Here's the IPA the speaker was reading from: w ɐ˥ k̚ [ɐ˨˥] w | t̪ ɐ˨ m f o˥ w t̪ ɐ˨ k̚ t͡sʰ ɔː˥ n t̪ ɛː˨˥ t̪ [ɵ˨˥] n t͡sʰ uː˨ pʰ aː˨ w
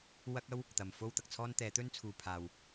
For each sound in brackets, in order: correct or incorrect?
incorrect: ɐ˥, incorrect: ɵ˥

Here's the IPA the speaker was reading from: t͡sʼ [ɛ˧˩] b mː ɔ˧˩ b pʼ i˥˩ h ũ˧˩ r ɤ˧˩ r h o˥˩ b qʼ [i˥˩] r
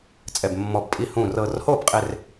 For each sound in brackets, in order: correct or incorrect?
correct, incorrect: e˥˩

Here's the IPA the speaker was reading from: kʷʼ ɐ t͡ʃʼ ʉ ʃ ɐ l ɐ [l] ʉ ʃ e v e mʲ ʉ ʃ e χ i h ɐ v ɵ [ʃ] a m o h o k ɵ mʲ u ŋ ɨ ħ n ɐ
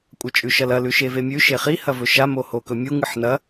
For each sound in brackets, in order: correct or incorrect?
correct, correct

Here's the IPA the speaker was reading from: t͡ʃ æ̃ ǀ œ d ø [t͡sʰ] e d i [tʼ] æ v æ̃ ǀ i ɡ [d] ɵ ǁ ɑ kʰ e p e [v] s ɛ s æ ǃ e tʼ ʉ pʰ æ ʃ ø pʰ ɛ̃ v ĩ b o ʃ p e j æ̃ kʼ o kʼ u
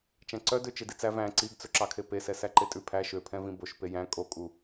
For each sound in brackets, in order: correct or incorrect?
incorrect: t͡ʃ, incorrect: t͡s, incorrect: t͡s, incorrect: none

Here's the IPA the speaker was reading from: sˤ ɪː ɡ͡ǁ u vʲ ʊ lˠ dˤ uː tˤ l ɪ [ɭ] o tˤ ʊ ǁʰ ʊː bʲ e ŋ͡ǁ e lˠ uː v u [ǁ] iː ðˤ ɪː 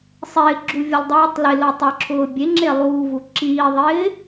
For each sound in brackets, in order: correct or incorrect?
incorrect: l, correct

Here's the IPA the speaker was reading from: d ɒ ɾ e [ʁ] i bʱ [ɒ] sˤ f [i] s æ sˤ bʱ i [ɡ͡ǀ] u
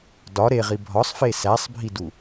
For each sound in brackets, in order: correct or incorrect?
correct, correct, incorrect: e, incorrect: d

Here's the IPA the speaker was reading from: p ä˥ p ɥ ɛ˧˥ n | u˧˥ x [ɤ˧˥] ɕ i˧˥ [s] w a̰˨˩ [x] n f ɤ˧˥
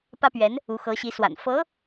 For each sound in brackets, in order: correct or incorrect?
correct, correct, incorrect: none

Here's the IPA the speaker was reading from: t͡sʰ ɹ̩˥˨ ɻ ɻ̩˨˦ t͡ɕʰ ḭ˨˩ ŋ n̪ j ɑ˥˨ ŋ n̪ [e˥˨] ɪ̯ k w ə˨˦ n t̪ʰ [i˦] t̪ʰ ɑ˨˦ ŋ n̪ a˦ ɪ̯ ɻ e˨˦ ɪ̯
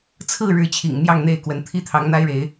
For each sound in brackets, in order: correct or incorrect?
correct, correct

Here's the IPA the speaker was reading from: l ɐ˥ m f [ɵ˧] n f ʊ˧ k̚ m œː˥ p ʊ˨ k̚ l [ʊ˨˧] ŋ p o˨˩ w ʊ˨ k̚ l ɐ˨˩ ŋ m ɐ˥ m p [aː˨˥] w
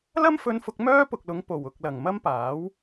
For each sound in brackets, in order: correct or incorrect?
correct, correct, correct

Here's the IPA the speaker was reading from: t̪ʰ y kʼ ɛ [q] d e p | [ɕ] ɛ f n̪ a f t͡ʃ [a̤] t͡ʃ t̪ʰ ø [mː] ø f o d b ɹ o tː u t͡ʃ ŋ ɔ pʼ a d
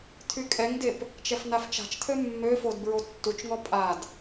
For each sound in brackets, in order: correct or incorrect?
incorrect: ŋ, incorrect: t͡ʃ, correct, correct

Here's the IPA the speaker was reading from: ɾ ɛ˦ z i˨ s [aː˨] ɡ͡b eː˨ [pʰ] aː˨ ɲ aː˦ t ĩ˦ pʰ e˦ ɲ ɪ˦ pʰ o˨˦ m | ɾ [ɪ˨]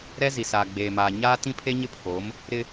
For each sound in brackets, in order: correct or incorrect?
correct, incorrect: m, incorrect: ɪ˦

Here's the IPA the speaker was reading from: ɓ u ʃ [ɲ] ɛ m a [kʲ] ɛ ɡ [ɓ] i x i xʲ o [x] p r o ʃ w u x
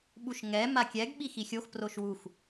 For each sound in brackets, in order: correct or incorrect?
incorrect: ŋ, correct, correct, correct

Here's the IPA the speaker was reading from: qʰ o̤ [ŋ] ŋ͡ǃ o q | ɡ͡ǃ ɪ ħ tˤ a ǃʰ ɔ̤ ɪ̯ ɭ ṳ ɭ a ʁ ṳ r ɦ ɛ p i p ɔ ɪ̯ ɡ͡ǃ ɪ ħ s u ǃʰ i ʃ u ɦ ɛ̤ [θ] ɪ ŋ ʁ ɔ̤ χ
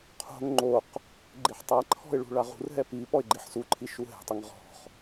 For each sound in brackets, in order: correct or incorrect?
correct, incorrect: tˤ

